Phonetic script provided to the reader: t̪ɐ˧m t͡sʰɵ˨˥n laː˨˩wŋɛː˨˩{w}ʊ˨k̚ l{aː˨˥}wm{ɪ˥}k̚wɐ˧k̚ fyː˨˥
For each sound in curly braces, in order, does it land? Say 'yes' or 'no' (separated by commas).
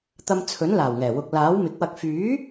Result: yes, yes, no